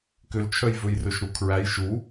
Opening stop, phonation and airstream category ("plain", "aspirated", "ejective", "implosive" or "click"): plain